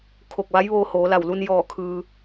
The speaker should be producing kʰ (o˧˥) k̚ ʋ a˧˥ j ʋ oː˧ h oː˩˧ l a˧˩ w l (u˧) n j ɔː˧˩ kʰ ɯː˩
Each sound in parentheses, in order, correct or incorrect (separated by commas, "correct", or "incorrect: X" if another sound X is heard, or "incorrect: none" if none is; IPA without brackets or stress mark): incorrect: o˧˩, correct